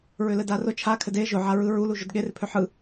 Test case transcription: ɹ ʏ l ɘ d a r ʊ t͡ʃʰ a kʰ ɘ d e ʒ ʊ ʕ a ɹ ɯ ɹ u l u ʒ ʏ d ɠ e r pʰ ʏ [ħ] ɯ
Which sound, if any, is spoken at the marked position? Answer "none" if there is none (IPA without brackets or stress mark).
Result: ħ